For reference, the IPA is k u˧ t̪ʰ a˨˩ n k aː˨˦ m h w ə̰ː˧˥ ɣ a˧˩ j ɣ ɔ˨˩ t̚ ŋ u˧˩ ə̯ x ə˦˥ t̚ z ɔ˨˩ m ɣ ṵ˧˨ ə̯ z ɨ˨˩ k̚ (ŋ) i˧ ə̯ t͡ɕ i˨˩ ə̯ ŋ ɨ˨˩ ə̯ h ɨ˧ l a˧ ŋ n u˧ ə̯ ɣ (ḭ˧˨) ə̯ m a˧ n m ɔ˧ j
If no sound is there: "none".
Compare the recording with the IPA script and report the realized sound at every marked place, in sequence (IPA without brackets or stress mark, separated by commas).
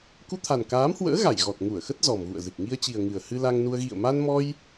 ŋ, ḭ˧˨